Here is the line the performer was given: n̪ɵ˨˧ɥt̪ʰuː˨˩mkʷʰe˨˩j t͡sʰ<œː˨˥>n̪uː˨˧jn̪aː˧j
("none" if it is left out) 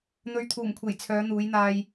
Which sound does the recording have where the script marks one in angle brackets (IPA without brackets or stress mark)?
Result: œː˨˧